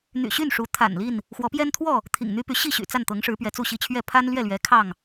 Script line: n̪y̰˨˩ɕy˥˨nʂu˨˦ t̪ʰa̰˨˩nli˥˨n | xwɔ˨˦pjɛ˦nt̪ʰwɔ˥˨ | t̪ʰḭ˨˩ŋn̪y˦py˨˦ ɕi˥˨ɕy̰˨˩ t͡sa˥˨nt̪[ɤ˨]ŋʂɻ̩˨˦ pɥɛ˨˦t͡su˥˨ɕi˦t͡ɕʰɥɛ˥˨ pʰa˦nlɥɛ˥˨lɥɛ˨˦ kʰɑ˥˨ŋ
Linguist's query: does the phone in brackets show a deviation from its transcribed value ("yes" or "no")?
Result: yes